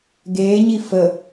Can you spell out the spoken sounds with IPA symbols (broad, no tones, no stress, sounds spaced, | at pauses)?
ɡ eː ɲ i f ə